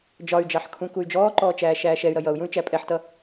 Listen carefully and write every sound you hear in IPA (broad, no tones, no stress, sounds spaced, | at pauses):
d͡ʒ ɒ y̯ d͡ʒ ɑ ħ kʰ ũ k u y̯ d͡ʒ ɔː ǃ ɔː t͡ʃ æː ʃ æː ʃ ɛ y̯ ɾ ʌ j ʌ u̯ j ũ y̯ t͡ʃ æ pʼ ɛ ħ t ʌ